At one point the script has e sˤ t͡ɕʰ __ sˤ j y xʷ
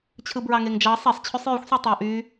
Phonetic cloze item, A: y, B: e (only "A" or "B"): A